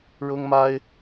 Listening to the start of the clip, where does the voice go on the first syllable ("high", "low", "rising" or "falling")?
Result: high